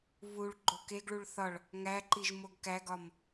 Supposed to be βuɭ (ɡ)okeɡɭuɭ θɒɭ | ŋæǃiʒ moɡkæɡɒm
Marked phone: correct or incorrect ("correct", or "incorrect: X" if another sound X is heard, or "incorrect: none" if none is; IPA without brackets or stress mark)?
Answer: incorrect: ɡ͡ǃ